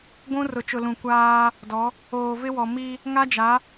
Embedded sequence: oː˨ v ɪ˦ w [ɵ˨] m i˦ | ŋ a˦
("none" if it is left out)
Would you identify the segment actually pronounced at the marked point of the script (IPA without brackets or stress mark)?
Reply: ɔ˨